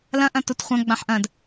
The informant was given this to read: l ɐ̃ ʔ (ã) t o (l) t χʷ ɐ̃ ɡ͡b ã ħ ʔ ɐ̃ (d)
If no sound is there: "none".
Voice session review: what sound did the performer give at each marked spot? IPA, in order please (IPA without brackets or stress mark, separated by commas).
ɐ̃, none, d